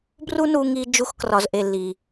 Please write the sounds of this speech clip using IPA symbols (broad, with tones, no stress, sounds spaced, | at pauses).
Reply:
b r u˦ n u˧ ŋ i˧ d͡ʒ u˧ x k r ɒ˨ z ʔ e˨ lː i˨